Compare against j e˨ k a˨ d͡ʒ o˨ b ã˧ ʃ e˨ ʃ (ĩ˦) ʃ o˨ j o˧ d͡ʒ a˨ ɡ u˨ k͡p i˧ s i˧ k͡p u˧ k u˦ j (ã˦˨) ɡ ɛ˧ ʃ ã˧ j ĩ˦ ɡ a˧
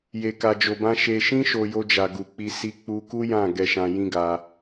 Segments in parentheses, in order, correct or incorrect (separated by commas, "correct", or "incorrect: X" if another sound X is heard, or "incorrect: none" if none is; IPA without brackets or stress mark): incorrect: ĩ˧, correct